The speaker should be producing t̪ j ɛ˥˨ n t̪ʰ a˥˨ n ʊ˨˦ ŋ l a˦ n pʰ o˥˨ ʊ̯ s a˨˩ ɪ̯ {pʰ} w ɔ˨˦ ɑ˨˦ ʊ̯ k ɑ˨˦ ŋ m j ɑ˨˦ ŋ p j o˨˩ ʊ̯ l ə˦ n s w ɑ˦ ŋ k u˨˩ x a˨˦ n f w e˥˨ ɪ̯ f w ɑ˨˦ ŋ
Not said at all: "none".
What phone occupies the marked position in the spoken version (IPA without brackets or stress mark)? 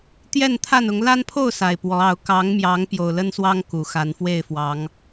p